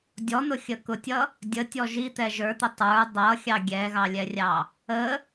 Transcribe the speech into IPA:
dʲ ɔ n̪ ʊ xʲ ə k ʊ tʲ ʌ | dʲ ə tʲ ɔ ʒ i t̪ ɛ ʒ ə˞ t̪ ʊ tˤ ə˞ dˤ ʌ xʲ ɑ ɡʲ ɛ ɣ ɑ lʲ ɛ rʲ ɑ | ə

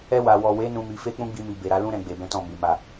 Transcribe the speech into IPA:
ɛ˧ w a˨ w ɔ˨ w e˨˦ n ũ˧ m i˧ f e˦ k͡p ũ˦ ɡ͡b i˧ m i˨ b e˨ ɾ a˨˦ l ũ˦ ɾ ɛ̃˧ ɡ͡b e˨ b ɛ̃˨˦ t ɔ̃˦˨ m i˨˦ m a˦˨

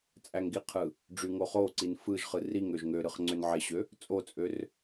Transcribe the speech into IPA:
t͡sʼ æ ŋ ɡ i qʰ ɯ | ɖ͡ʐ y ŋ o χ o ǀ i n f ɯ ʒ χ ɯ r i ŋ ø ʒ ŋ ø ɾ ɯ χ ŋ͡ǀ ø n ʕ e ɕ ø | t͡sʼ o t͡sʼ ø r

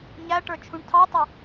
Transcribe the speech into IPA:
ɲ æ ʈ ə˞ t͡ʃʰ ũ ɳ tʰ ɑ tˤ u

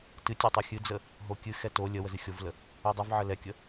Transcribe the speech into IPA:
t ɨ tʲ ɛ tˤ ɛ xʲ ɨ d͡z ə | ɦ o kʲ ɨ x ɛ t o lʲ ə w ə z ɨ xʲ o v l ə | ɛ dˤ ɨ v ʕ ə l ɛ kʲ ə

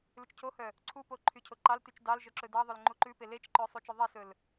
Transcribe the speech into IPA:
l ʉ t͡ʃ cʰ o h œ | ǀʰ u p o ǃʰ y cʰ o ǃ ɑ l t y t͡ʃ d ɑ l ʒ œ ǁ ɵ d ɑ ðˤ ɵ l ŋ͡ǃ u ǃ ʉ p e l e t͡ʃ ǃ œ sˤ u t͡ʃ œ ðˤ e s ɵ l

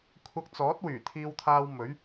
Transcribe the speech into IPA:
kʷʰ ɐ˧ k̚ t͡s ɔː˨˥ t̚ w yː˨˩ t̪ʰ iː˧ w t̪ʰ aː˧ w m ɵ˨˥ ɥ

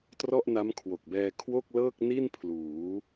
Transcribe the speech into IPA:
t r ɔ˥˩ ʔ n a˦˥ m kʰ w o˨˩ k̚ b ɛː˧ kʰ w o˥˩ k̚ l ɤː˥˩ k̚ n i˥˩ n pʰ l uː˩˦

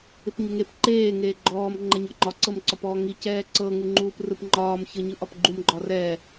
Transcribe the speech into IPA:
ɪ p ɲ ɪ ŋ e p ǃ eː ŋ eː ɡ͡ǃ ɔː m ŋ͡ǃ ɛ ɲ ɒ ŋ͡ǃ ɒ ǀ ɤ m ǀ ɒ p ɔː ŋ i c ɛː ǀ ɤ ŋ u ŋ͡ǃ uː p r ɯ p ŋ͡ǃ ɒː m ç ɤ ɲ ɯ ʔ ɒ p ɡ͡ǃ u m ɡ͡ǃ ɒ r ɛ

